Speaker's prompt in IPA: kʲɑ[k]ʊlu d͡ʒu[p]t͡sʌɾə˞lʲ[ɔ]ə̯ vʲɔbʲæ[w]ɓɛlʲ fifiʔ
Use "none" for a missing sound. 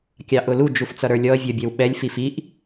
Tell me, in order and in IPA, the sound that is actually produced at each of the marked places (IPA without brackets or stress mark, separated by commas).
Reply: ʔ, f, ɔ, w